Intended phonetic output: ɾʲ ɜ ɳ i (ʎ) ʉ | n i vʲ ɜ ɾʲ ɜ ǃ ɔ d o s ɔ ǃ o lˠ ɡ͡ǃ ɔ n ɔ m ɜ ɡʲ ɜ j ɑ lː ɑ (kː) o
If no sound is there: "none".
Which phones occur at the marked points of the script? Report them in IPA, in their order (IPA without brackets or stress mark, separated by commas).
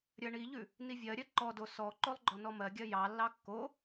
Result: ʎ, kː